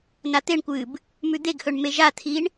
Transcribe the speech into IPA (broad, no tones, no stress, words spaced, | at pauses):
nat̪eɳkʷɨːb | mʉd̪eɡhɵɳ meʒat̪ʰiɳ